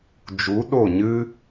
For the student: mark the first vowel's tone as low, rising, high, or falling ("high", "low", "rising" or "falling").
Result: rising